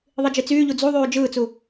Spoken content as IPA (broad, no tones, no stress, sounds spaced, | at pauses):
ðˤ i d͡ʒ i t͡s yː ʎ u d͡z u ðˤ yː d͡ʒ ɯː t͡s u